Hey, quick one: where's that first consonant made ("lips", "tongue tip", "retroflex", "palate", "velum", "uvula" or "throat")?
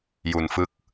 palate